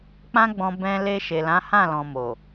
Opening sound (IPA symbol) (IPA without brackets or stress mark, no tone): k͡p